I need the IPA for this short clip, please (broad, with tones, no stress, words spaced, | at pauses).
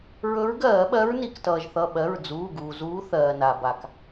ɹɵ˨˦ɹɡɜː˧˩˧ɓɜ˨˦ɹ ni˩˧˩k tʌː˩ʒθʌ˩˧˩ ɓɜ˩˧˩ɹd͡zuː˩˧˩ɡuː˩zuː˨˦ θɜː˩na˩ba˩k